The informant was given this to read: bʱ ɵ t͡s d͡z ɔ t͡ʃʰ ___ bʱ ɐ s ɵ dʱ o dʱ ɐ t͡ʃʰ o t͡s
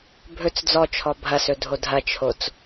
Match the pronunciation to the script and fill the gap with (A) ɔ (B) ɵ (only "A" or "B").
A